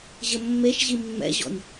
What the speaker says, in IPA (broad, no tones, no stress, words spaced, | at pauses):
ʑɘmːeʃʑi mːɛ̰ʑɔ̰nʲ